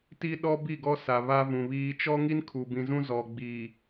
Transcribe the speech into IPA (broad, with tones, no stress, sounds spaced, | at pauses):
t i˦ ɗ ɔ˦ b i˦˨ ɡ ɔ˦ s a˨ β a˦ v ũ˨ β iː˦ t͡ʃ ɔ˦ ŋ i˦ n kʰ u˨ b ĩ˨ z ũ˦ z ɔ˨ ɡ͡b i˨